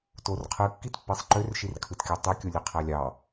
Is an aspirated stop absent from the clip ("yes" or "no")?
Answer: no